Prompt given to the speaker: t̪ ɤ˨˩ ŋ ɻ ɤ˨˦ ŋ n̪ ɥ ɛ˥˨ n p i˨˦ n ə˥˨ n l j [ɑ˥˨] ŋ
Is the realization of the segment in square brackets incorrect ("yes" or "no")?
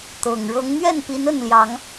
yes